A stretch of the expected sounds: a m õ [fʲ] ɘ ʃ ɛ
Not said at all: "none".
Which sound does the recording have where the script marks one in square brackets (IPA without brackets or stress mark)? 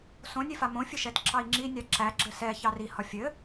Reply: fʲ